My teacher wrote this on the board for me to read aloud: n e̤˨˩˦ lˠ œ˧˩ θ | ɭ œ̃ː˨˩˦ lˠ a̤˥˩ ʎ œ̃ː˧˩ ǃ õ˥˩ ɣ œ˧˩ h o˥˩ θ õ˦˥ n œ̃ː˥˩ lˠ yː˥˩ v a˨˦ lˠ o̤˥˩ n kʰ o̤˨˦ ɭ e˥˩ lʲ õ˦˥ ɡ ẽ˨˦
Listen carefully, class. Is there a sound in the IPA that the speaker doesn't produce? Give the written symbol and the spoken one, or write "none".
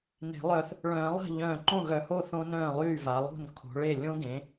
none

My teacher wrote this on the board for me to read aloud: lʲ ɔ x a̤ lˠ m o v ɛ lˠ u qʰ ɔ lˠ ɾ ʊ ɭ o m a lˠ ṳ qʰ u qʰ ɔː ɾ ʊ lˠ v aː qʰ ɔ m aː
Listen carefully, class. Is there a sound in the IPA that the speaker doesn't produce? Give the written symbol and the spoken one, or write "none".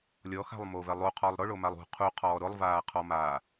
none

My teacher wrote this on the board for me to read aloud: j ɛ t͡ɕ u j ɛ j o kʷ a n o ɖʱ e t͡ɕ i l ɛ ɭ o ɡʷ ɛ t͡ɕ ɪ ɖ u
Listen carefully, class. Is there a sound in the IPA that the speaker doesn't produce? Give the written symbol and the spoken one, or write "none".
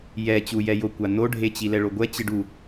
none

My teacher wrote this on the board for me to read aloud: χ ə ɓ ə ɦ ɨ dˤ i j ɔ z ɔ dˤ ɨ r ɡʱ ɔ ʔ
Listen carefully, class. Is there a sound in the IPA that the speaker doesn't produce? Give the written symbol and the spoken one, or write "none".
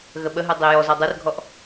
χ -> ɣ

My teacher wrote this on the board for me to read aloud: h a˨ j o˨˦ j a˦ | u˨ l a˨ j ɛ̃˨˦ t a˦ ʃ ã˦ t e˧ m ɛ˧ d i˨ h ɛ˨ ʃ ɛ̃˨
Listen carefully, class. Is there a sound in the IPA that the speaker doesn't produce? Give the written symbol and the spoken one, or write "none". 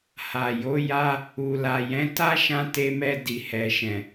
none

